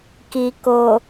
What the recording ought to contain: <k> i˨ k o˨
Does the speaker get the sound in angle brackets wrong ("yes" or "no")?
no